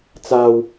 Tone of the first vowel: low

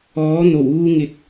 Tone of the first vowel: rising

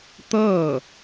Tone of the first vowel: falling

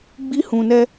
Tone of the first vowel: high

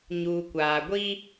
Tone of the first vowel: low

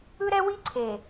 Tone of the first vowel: high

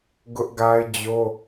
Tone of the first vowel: high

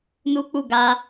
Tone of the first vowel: high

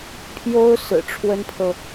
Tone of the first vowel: high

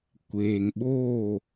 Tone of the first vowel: low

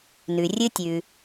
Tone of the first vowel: low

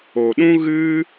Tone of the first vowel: low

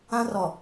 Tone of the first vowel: high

